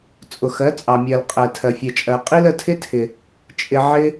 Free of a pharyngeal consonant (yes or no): no